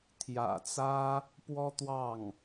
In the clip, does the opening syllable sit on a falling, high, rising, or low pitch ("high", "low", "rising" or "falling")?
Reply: low